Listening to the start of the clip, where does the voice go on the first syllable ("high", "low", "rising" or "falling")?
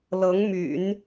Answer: rising